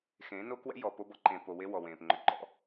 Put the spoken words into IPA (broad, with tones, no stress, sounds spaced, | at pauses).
x ẽː˨˦ n o˦ k w ɛ̰˦ j ɔ˨ p o˦ b ɔ˨ ǃ ẽː˨ p o˨ w e˦ w ɔ˨ w ẽː˨ p ŋ͡ǃ ʏ˨ ǃ ɔ̰˦